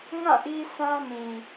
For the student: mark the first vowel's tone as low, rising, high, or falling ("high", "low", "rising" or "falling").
falling